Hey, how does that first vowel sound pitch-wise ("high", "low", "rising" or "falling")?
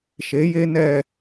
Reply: rising